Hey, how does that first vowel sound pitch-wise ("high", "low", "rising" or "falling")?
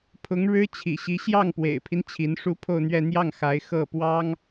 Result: rising